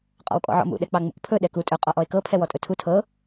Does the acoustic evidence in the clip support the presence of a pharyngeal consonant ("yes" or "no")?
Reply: yes